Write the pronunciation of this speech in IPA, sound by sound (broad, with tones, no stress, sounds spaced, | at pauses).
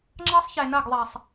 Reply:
ŋ͡ǁ ɑ˦ sˤ ç e˨ n ɐ˦˨ ɡ ðˤ ɛ˨ sˤ